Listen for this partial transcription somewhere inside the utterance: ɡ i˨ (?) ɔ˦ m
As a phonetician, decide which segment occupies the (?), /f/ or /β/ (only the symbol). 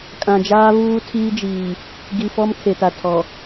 f